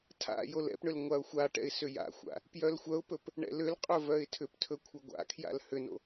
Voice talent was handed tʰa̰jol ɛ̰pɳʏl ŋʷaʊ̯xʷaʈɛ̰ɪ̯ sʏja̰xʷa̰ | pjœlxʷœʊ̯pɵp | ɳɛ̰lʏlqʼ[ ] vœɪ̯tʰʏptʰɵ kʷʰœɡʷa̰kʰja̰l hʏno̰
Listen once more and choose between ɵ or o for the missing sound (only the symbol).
ɵ